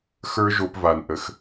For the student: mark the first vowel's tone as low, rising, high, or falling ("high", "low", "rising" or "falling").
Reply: high